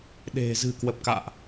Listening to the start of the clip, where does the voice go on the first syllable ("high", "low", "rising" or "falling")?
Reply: low